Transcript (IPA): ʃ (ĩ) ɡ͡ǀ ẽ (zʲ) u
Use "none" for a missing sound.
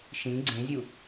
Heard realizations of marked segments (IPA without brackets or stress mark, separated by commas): ĩ, zʲ